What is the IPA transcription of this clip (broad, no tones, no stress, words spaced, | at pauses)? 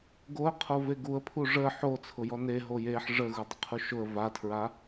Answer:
ɡoə̯qʰo veɡuə̯pʰu ʐə ħo t͡sʰʊjɔne ɦojeħ ʐə ɣudˤʊqʰuʃʊə̯ vatʰɹa